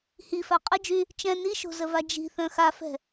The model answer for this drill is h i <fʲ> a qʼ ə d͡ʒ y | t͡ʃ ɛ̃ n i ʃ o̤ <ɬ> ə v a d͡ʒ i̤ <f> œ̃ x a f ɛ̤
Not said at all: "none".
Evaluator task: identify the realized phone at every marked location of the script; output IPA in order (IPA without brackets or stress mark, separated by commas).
f, z, θ